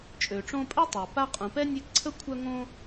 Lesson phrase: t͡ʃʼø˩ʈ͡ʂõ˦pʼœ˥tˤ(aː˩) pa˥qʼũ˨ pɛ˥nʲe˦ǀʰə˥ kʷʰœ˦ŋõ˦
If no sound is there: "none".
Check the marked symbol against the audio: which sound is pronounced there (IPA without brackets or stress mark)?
a˩